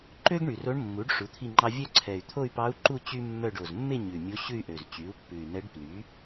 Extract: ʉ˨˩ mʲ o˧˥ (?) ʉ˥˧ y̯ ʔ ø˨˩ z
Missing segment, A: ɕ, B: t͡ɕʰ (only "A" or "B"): A